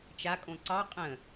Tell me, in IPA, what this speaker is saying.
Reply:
t͡ʃ a kʼ õ ǀ ɑ qʼ ə̃

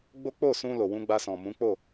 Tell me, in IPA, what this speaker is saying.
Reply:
ɡ͡b o˦ k͡p o˦˨ s ũ˧ l o˨ w ũ˧ ɡ͡b a˧ s ɔ̃˨ m ũ˨˦ k͡p o˦˨

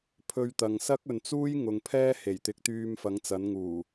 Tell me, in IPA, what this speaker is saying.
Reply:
pʰ ɵ˧ ɥ t̪ ɐ˨ ŋ s ɐ˥ k̚ ɵ˨ n t͡s uː˥ j ŋ ʊ˨˧ ŋ pʰ ɛː˥ h e˨˩ j t̪ ɪ˨˥ k̚ t̪ yː˧ m f ɐ˨˥ ŋ t͡s ɐ˨˥ n ŋ uː˨˩

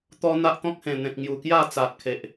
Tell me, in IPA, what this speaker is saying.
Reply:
t̪ ɔ˧ n̪ a˦ ʔ t̪ ɔ̃˦ k̚ h ẽ˨˩ n̪ ẽ˨ k̚ ŋ j u˨˩ k j a˥˧ t͡s a˨ t̚ kʰ e˨ ʔ

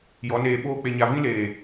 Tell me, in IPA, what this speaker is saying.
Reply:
j ɔ˨˦ n eː˧ ɓ oː˦ k͡p e˧ ɲ a˧ v ĩ˦ l eː˨

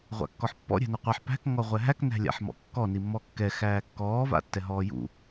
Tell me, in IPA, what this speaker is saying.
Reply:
ʁʷ a̰ kː ɔ ħ pː ɔ̰ ɾʲ æ̤ n ɛ qʷ a ħ p æ̤ k ŋ ɔ ʁʷ ɛ ɦ æ k n æ̤ lʲ a̰ ħ m ɔ̰ kː ɔ n i mː ɔ kː ɛ x æː kː ɔː v a̰ tː ɛ ɦ ɔː j ṵ

